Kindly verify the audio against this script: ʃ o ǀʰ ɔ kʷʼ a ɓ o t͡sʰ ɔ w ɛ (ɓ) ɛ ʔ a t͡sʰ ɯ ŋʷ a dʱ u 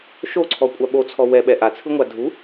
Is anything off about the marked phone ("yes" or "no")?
no